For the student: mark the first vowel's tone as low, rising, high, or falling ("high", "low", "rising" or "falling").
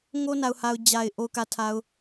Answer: high